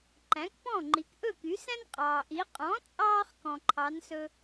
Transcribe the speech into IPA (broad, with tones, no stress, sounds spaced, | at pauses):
ǃ æ̃˩˥ k p ɔ̃˥˩ ŋ͡ǃ i˩˥ k ʔ ɵ˥˩ k y˩˥ s æ̃˥ n qʼ ɑː˩ ʔ i˩˥ qʼ ɔ̃˩˥ t͡sʼ ɑː˧ χ k ɔ̃˩ ǃʰ ɑ˩˥ n s ɵ˧